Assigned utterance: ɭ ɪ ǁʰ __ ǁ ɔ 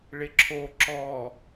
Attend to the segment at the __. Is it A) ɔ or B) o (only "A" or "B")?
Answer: B